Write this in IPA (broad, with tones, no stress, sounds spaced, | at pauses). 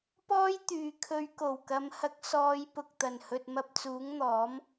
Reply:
p ɔː˥ j t̪ yː˨ kʰ ɵ˨˧ ɥ k o˨˩ w k ɐ˨˧ m h ɐ˨˥ k̚ s ɔː˨˧ j p ʊ˨ k̚ t̪ ɐ˨˩ n h ɵ˨ t̚ m ɐ˧ p̚ t͡s uː˨˥ ŋ n̪ ɔː˨˥ m